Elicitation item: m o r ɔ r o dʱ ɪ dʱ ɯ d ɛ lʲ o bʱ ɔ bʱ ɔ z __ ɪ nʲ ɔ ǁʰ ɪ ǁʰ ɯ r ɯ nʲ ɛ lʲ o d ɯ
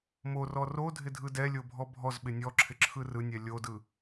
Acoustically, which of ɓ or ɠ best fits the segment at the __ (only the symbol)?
ɓ